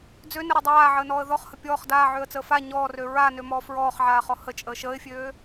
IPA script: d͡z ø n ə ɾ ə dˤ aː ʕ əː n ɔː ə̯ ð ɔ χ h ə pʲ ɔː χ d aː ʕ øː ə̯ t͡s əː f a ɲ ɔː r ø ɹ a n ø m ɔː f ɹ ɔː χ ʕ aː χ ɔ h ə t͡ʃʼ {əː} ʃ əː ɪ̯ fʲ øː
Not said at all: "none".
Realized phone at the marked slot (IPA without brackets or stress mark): əː